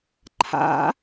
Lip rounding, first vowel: unrounded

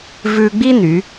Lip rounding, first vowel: rounded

